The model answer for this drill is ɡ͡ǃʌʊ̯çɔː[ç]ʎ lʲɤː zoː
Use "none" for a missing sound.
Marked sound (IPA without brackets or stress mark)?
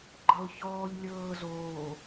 none